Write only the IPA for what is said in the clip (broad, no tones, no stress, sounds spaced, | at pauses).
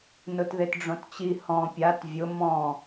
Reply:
n ʊ t ð e t ɖ͡ʐ õ t t͡ɕ i h ɔ̃ pʲ a t vʲ ʊ m ɔ̃